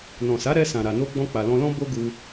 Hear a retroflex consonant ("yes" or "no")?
no